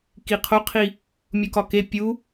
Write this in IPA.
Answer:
k i qʰ o qʰ i | mʲ u k ɒ k e pʲ u

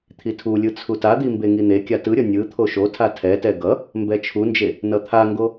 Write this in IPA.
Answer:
t̪ʰ i tʰ u lʲ ɯ t͡sʰ u t a d̪ i m b e ŋ i n̪ e kʲ a t ɯ ɾʲ ʌ nʲ ɯ t̪ʰ o ʃ o tʰ a tʰ ɛ t ɛ ɡ ʌ | m b ɛ t͡ʃʰ u n d͡ʒ e | n ʌ t̪ʰ a ŋ ɡ o

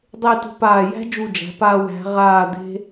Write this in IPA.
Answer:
dˤ e˥˧ t ṳ˧ p aː˧˩ j æ̤˥ d͡ʒ u˧˩ d͡ʒ æ̤˩˧ p a˧ w æ̤˩˧ ʁ aː˧˩ d̪ e̤˧

